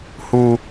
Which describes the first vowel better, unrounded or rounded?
rounded